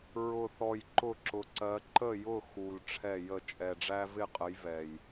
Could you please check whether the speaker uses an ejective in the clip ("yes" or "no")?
yes